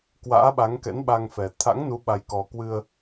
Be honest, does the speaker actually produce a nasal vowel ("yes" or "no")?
no